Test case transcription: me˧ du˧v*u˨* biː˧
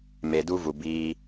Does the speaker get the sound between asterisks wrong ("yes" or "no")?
no